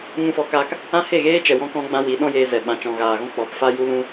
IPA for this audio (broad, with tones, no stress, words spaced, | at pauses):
ŋũ˧fɔ˨˦kaː˧k | ã˦he˦˨ɣeː˦ t͡ʃɛ˨wɔ̃˧kɔ̃˧ɡ͡bã˧ wi˨˦ɗɔ̃˦jeː˧zɛ˨ ɓã˨t͡ʃɔ̃˨ɣaː˨ɣɔ̃˦ k͡pɔ˨˦pfa˦ju˦lũ˦